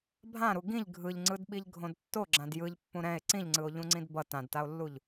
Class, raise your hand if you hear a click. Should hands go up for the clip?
yes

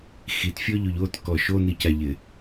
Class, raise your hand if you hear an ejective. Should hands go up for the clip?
no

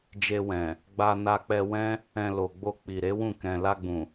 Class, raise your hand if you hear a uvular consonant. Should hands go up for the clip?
no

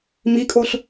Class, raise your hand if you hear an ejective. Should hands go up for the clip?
yes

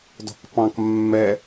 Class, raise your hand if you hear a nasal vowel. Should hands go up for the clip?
yes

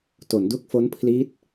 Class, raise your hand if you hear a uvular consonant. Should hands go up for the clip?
no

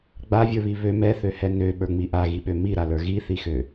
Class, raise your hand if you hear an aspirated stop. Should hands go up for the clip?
no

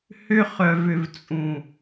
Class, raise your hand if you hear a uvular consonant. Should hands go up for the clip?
yes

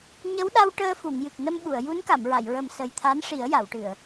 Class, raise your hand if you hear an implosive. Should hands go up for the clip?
yes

